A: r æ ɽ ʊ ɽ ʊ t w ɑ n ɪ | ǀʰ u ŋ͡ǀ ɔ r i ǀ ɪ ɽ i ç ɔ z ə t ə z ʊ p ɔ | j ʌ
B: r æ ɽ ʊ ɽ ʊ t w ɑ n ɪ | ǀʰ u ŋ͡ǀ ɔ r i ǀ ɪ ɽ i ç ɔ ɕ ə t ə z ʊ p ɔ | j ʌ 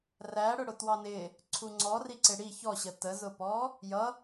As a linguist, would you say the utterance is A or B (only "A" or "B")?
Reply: B